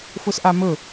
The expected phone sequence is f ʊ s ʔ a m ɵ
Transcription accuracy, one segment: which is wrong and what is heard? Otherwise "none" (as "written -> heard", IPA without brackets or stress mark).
none